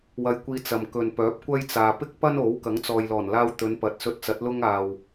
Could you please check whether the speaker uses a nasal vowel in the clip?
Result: no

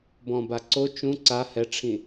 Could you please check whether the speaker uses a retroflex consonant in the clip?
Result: yes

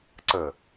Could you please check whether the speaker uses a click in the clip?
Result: yes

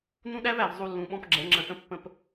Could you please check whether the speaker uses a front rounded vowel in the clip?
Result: no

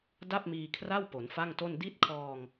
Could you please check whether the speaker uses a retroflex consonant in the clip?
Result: no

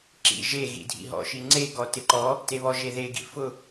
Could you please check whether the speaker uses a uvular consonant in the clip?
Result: no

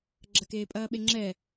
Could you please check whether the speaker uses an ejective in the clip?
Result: yes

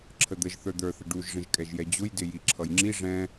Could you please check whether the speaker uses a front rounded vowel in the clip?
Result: no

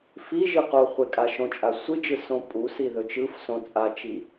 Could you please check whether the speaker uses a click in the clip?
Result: no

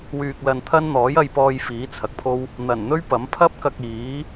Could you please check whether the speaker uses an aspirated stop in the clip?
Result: yes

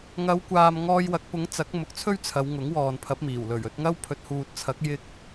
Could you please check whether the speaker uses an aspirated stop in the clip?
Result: yes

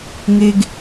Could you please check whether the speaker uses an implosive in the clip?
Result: no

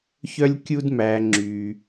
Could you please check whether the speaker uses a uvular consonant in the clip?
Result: no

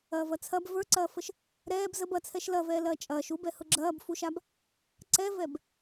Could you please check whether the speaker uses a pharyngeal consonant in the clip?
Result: no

